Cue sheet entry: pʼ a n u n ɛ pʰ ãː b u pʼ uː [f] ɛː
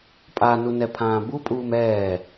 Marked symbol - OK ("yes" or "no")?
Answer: no